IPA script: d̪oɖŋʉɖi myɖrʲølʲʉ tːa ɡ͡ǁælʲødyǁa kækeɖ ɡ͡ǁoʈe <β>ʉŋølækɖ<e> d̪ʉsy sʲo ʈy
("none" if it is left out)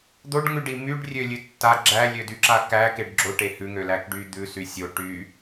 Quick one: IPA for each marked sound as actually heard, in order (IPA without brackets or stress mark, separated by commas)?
h, y